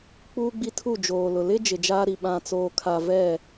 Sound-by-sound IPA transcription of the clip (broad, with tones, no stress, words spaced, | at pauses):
k͡puː˦ɡ͡bi˦tʰu˦˨ d͡ʒoː˨lʊ˨ lɪ˦ d͡ʒɪ˨d͡ʒaː˦ɾi˨ ɓã˨t͡soː˨kʰa˨ vɛ˦˨